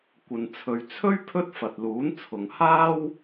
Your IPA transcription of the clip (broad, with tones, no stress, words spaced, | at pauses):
kʷɐ˨nt͡sʰɵ˨ɥ t͡sʰɵ˥ɥ pʰɵ˥t̚fɐ˨t̚luː˨˥n t͡sʰʊ˨ŋhaː˥w